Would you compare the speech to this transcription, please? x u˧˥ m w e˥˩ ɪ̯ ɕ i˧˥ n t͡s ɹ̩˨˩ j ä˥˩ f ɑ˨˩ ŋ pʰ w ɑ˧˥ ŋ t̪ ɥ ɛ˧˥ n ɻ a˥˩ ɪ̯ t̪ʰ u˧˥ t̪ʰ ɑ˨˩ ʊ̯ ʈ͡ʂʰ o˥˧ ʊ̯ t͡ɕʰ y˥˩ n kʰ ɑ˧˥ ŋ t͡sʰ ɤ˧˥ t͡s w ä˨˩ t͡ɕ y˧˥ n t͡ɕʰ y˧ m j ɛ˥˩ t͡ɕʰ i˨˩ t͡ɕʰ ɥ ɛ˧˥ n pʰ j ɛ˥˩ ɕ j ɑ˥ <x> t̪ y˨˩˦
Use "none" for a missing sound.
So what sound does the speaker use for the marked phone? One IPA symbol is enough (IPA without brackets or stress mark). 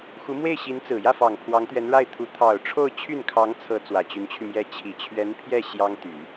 ŋ